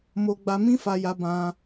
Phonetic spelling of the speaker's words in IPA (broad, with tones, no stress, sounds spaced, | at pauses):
m o˧ ɡ͡b a˧ m ĩ˦ f a˧ j a˧ b ã˧